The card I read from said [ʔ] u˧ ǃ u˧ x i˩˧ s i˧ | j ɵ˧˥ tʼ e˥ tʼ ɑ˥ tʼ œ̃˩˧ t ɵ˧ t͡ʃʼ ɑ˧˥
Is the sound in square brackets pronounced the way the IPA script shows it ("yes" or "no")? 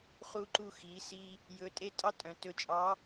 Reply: no